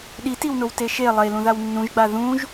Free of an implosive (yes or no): no